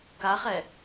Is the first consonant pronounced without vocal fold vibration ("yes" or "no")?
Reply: yes